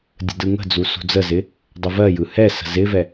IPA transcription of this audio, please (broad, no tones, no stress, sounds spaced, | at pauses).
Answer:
dʲ ə̤ d ɯ ŋ ə̤ d͡z u s ṳ d͡z ə z ɪ | dˤ ə v ɜ j ɯ h ɛ s ə̤ z ɪ v ɛ